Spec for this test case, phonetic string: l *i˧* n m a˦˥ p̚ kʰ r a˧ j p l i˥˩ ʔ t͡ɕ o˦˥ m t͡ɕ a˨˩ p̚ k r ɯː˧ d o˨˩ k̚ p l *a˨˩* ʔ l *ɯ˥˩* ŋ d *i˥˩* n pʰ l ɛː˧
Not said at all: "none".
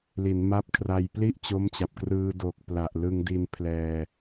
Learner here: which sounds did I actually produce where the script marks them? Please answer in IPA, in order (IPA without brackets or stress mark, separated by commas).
i˩˦, a˨˩, ɯ˧, i˧